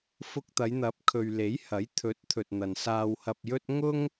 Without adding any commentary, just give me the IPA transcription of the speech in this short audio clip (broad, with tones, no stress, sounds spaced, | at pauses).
f ʊ˧ k̚ t̪ ɐ˨˧ j n̪ ɐ˨˥ p̚ kʰ ɵ˨ ɥ l e˨˥ j h ɐ˨˥ j t̪ʰ ɵ˨˥ t̚ t̪ʰ ɵ˨ t̚ n̪ ɐ˨ n s aː˧ w h ɐ˧ p̚ j ɵ˥ t̚ ŋ ʊ˥ ŋ